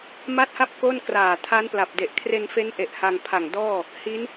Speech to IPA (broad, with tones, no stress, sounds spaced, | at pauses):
m a˦˥ t̚ h a˦˥ p̚ k o˥˩ n k r aː˨˩ tʰ a˦˥ n p l a˨˩ p̚ d e˨˩ ʔ kʰ r e˧ n f e˦˥ n ʔ e˨˩ ʔ h a˧ ŋ pʰ a˨˩ ŋ d ɔː˥˩ | h i˦˥ n